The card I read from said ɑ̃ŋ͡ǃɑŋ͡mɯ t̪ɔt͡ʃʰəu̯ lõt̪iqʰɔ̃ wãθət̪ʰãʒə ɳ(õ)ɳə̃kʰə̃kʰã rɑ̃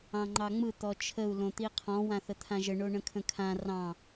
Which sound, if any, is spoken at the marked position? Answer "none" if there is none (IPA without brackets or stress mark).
o